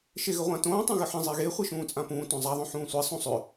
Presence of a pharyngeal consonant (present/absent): present